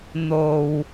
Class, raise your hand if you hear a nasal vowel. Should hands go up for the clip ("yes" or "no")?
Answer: no